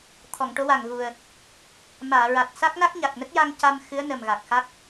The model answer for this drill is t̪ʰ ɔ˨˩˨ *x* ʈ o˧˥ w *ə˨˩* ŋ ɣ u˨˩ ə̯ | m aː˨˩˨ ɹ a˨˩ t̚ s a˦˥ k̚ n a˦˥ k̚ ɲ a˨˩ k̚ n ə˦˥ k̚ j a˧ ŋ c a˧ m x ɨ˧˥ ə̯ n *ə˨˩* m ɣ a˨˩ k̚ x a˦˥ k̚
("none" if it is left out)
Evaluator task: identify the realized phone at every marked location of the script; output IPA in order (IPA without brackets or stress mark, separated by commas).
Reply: ŋ, a˨˩, ə˨˩